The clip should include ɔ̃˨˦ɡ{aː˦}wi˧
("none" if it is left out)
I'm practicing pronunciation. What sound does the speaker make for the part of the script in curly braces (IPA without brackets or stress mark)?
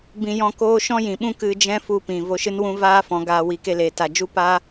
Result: aː˧